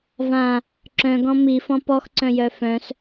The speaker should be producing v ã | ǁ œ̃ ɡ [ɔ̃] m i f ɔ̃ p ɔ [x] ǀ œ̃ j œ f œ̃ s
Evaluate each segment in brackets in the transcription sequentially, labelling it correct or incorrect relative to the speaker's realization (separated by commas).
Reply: correct, correct